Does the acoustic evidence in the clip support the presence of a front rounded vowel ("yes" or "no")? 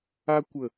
no